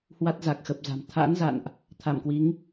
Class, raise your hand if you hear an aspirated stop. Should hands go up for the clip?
yes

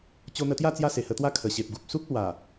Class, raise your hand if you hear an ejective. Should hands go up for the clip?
no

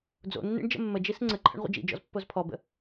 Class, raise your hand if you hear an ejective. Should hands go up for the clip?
no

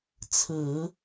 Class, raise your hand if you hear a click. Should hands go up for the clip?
no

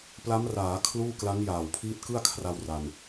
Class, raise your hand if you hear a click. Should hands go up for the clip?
no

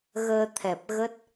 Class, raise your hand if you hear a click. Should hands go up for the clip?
no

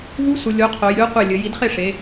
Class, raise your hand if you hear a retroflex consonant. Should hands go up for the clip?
yes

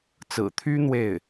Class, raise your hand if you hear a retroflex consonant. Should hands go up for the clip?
no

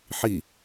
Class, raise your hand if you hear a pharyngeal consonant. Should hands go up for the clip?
yes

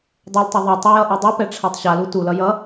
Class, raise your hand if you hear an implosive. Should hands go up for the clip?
no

